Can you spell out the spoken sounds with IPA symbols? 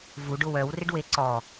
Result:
v u ɖ ʊ w œ w r ɪ ɖ w e ǀ ɔ

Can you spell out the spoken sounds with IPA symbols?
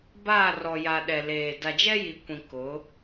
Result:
b aː˦˨ r ɔ˨ j a˨ ɗ ɛ˨ l eː˨ d a˨ d͡ʒ ɛ˦ j i˨ kʷ ĩ˨ k ʊ˨˦

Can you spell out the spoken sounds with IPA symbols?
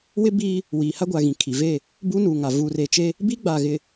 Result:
w ɪ˦ b iː˦ | w iː˨ h a˦ ɡʷ a˨ ɣ ĩ˨ kʰ i˨ v e˦˨ | b uː˦ n uː˨ ŋ a˨ v uː˨ r e˨ t͡ʃ e˦ | b i˦ ɡ͡b a˨ ɣ ɪ˨

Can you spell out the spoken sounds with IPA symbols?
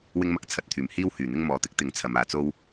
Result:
w ɪ˥ ŋ m ɐ˥ k̚ t͡sʰ ɐ˨˥ t̚ t̪ʰ yː˨˩ m h iː˥ w h yː˨˩ n̪ ɪ˥ ŋ m ɔː˨˧ t̪ ɪ˥ k̚ t̪ ɪ˨˥ ŋ t͡sʰ ɐ˨ m aː˨ t͡s o˥ w

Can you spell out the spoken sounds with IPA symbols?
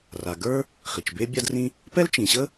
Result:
r a˩ ɡ ə˞˥ | χ i˩ t͡ʃ b e˥ bʲ a˥ d r ĩ˥ | p ɛ˥ l t͡ʃ ĩ˩ ɕ ə˥

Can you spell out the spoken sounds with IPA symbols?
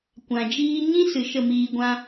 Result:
kʷ ã˨ d͡ʒ iː˦ ɲ ĩ˦ s ɨ˨ ʃ ə˦˨ m iː˧ ɡʷ ã˦

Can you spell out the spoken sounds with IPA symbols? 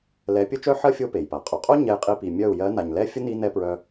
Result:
l ɛ˨˦ pʲ ə˦ t͡ʃ œ˦ ħ ɜ˦ fʲ o˦ p e˨ j p a˨ qʼ o˨ qʼ o˦ ɲ ɛ˦ j qʼ i˦ p i˨ mʲ œ˦˨ u̯ j ɜ˨˦ n a˨ ɲ l ɛ˦ fʲ ə˦ n i˦ n ɛ˦ p ɹ œ˧

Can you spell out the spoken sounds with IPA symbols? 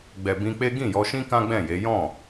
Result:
ɡ͡b ɛ˨ b ĩ˧ k͡p e˦ ɡ ĩ˦˨ j ɔ˧ ʃ ĩ˦ k ã˦ ɡ͡b ɛ̃˦˨ j e˨˦ j ɔ̃˦˨

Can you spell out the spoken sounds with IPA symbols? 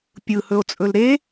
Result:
pʲ ɯ h ɵ o̯ t͡sʼ ɵ l ɾ e

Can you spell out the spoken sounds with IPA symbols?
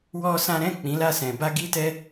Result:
w ɔ˦ s ã˦ ɾ ɛ̃˦˨ k͡p ĩ˨˦ l a˦˨ s ɛ̃˨ b a˧ ɡ i˧ t ɛ˦

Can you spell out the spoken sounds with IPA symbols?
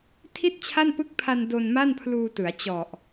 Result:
tʰ i˥˩ t̚ t͡ɕʰ a˥˩ n p ɯ˦˥ k̚ pʰ a˧ n d o˧ n m a˥˩ n pʰ l uː˧ t ɯ˩˦ a̯ t͡ɕ ɔ˨˩ ʔ

